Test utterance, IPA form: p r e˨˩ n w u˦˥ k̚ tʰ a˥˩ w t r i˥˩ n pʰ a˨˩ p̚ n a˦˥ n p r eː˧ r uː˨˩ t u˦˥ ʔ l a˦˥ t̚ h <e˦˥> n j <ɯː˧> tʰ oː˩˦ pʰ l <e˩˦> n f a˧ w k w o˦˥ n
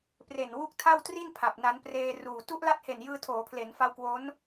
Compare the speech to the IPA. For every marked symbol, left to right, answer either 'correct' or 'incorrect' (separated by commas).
incorrect, correct, correct